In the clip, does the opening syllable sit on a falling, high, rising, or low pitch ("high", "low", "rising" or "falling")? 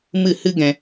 falling